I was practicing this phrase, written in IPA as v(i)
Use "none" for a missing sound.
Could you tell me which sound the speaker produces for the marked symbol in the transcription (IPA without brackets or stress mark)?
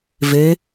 e